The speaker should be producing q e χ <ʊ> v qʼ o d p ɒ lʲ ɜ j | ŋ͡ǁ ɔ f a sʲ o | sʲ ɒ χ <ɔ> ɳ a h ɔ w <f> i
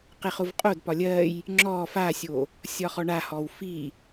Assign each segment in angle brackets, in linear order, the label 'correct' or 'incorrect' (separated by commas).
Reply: correct, correct, correct